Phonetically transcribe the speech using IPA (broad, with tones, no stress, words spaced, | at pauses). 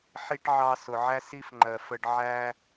ħi˦ʈ ʕɑ˧sʊ˨ʕæ˦ si˦fŋ͡ǃɜ˨ fə˧ɖ ʕæ˦